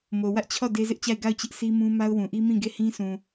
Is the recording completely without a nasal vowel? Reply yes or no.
no